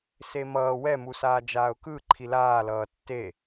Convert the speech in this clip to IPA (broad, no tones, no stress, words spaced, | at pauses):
semʌː wɛ musaːd͡ʒaːʊ̯kɯ ǃʰilaː lʌːtːe